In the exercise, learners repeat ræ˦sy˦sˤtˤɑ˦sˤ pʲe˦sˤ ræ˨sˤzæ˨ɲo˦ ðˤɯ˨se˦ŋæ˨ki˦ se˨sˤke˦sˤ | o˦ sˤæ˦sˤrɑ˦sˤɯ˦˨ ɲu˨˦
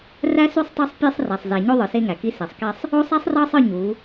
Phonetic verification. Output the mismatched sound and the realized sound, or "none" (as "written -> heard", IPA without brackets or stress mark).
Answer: none